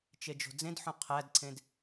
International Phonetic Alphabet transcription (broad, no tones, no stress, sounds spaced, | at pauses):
t͡ʃ e d͡ʒ o̤ d͡z ẽ d ħ õ qʰ æ d ǀʰ ẽ d